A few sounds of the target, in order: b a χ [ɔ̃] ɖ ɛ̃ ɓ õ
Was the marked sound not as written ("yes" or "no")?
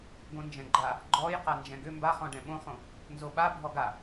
no